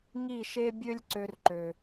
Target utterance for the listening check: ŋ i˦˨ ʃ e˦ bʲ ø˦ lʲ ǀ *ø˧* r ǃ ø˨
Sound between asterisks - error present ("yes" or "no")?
yes